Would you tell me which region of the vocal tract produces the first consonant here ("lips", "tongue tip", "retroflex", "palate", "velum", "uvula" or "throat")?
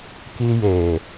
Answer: velum